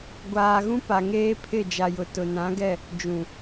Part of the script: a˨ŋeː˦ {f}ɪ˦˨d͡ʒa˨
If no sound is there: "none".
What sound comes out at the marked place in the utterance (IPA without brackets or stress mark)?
pʰ